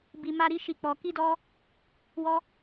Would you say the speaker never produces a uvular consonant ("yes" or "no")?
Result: yes